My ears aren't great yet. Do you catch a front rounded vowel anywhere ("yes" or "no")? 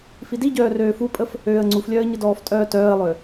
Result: yes